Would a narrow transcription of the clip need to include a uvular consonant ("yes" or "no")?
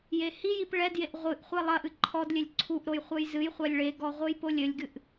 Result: yes